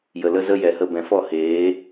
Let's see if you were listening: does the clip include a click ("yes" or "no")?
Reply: no